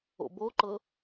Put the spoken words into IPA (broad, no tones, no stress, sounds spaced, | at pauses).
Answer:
o̰ b o ǃ ɤ